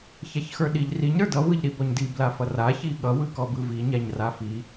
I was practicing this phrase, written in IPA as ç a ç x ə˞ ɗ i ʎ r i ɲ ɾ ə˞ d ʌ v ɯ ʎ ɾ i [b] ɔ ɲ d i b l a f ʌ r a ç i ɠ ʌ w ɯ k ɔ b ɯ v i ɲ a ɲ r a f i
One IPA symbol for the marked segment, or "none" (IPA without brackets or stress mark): b